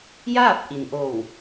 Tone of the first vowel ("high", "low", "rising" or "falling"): falling